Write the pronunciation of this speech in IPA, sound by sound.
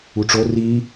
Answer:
u ʈ͡ʂ o r i

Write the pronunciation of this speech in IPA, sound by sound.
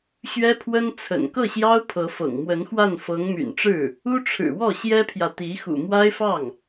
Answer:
ɕ ɥ ɛ˥ pʰ w ə˥ n t͡sʰ ə̰˨˩ n k ɤ˥˩ ɕ j ɑ˥ ʊ̯ pʰ ɤ˧˥ f ɤ̰˨˩ ŋ m w ə˧˥ n x w a˥˩ n f ɤ˧˥ ŋ m y̰˨˩ n ʈ͡ʂ ɻ̩˥˩ | u˥ ʈ͡ʂʰ ɻ̩˨˩ w ɔ˥˩ ɕ j ɛ˥ pʰ j ä˨ t̪ i˧˥ x ṵ˨˩ m w a˥ ɪ̯ f ɑ˥˩ ŋ

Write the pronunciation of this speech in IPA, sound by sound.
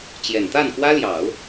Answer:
t͡ɕ j ɛ˨˩ n t̪ a˥˩ n k w ä˥ l j ɑ˨˩˦ ʊ̯

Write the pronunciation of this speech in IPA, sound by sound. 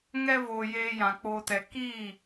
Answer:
ŋ ɛ˧ v oː˨ j eː˧ j ã˨ k͡p oː˨ t ɛ˨ k iː˦˨

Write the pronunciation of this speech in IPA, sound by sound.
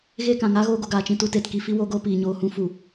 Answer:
ɣ e˦˨ k ã˨ ŋ a˦ ɣ oː˧ ɡ o˨ ɡ aː˨ t͡ʃ ĩ˨ t u˧ t e˨ t k i˧ f i˦ w oː˦ ɡ oː˦ p iː˨ ɲ oː˧ h ũ˦ f u˨

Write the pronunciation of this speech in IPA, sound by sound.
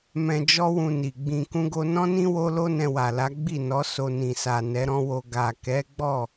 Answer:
m ɛ̃˧ d͡ʒ ɔ˦ w ũ˧ n i˨ ɡ͡b ĩ˧ k ũ˦ ɡ o˦ n ɔ̃˦ n ĩ˦ w o˦ l o˦ n ɛ̃˧ w a˨ l a˨˦ ɡ͡b i˦˨ n ɔ˨˦ s o˧ n ĩ˨ s a˨ n ɛ˨˦ ɾ ɔ̃˦ w o˧ ɡ a˨ k ɛ˨˦ ɡ͡b ɔ˦˨

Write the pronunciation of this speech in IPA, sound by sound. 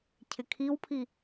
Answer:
cʰ ɪ kʰ i w pʰ i

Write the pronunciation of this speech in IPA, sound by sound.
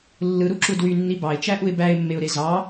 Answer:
lː ɯ ɾ u ǁ u d w y nː i b ɑ ɪ̯ t͡ʃ æ ʔ u ɪ̯ b æ ɪ̯ mː e ʊ̯ ɾ e z ɑ

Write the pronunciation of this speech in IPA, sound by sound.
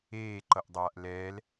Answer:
eː ǃ ʌ ʔ dˤ aː ʔ l ɛː l

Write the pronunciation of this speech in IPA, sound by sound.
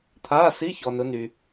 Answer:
t̪ʰ aː˧˥˧ s i˧˥˧ ç ɔ˨ n ʊ˨˦ n y˨

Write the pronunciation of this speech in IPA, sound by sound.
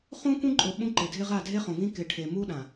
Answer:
χ ũ˦ k ũ˦ ǃʼ ʊ˨ ɓ ũ˦ ǃ ɪ˨ dʱ ɪ˦ ʁ a˦˨ dʱ e˦ χ õ˨ v ĩ˦ k ɪ˨ ʈʰ e˨ m u˦ ɗ ã˨

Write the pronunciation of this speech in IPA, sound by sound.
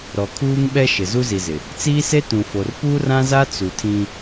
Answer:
ɾ ɔ˨ kʰ uː˦ ŋ ɓ ɛ˦ ʃ ɪ˨ z u˦ z i˨ z ɪ˨ | t͡s iː˦ s e˦ t ũ˨ f o˨ r p uː˦ r ã˦ z a˦ t͡s u˨ tʰ ĩ˦

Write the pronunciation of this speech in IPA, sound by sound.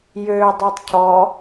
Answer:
j øː dˤ o tˤ cʰ ɔ

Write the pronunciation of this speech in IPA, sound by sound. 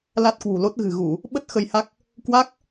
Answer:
l a˦˥ t̚ k w ṳ˨˩ l o˦˥ t̚ ɣ ɨ̤˨˩ ɣ u˧˩˨ | ɓ ə˦˥ t̚ x ə˧ j h a˦˥ k̚ | k w a˦˥ k̚

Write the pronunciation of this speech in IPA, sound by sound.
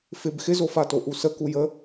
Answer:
f ɪ b x ɪ z o f a t o ʔ u s ə k u j ə

